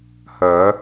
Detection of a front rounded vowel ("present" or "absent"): present